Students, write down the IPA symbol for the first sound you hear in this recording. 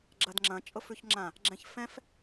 ɡ͡ǁ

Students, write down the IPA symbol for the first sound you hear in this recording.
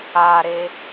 a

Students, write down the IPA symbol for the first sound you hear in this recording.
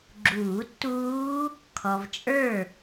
ɡ͡ǁ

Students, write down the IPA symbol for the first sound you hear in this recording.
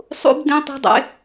sˤ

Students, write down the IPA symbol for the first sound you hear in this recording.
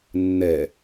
nː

